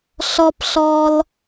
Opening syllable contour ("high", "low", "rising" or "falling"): high